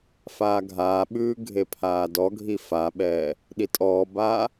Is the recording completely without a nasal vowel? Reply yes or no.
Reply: yes